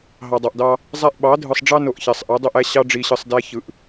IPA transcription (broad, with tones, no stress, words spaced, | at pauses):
ɦɑ˨dˤɑ˨ʔdɑ˦ | zˤæ˦ʔ ɓɑ˨˦dʱɯ˨sˤ ɖ͡ʐɑ˦no˨ʔ çæ˨sˤʔɯ˨˦ dˤo˦ʔæ˦ ɕɑ˦ɖ͡ʐi˨ɕɯ˨sˤ dæ˦çɯ˨ʔ